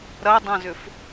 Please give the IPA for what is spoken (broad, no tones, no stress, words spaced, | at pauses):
ɾɐdˤɐ̃zʏf